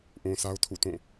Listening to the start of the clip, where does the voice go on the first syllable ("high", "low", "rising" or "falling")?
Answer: low